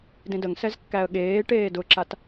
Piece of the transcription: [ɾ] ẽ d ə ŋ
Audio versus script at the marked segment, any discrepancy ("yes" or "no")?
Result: yes